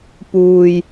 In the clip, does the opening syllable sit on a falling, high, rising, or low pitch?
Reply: low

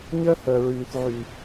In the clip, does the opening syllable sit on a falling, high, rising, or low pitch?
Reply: high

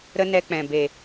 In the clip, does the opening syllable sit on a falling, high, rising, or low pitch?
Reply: high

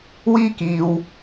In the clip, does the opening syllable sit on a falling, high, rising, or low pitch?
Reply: high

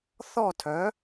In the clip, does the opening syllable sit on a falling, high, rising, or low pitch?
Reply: falling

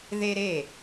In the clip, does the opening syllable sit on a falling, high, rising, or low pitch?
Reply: high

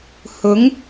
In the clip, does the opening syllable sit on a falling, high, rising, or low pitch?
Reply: rising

